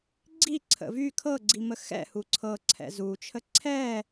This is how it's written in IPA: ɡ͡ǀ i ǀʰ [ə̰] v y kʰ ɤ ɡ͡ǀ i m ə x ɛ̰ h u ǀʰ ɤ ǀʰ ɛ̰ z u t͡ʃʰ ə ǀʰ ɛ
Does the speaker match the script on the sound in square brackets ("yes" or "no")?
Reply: yes